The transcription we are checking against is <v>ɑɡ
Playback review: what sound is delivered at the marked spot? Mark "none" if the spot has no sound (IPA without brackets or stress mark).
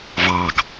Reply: v